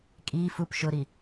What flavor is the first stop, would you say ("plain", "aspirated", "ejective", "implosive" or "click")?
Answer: ejective